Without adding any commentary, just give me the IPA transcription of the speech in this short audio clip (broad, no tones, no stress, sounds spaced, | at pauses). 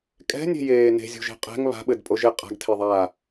kʼ ɛ̤ nʲ e̤ j eː n e̤ zʲ o̤ ʒ e̤ qʼ ɛ̤ ŋ β a̤ ɓ ɘ d pʼ o ʒ e qʼ a̤ ɡ tʰ e ðˤ aː